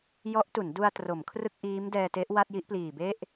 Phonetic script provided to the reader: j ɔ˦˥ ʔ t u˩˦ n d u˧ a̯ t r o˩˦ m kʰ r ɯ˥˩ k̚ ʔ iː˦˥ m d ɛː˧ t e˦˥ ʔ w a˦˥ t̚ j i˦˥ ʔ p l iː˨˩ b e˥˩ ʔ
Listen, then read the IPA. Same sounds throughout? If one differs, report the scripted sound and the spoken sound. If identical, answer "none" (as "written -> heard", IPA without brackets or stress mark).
a˦˥ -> a˥˩